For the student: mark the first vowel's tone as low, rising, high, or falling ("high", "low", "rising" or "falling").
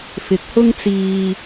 rising